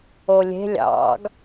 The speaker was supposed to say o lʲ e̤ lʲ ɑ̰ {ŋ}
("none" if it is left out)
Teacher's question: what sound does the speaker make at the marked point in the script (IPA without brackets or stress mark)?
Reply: ɡ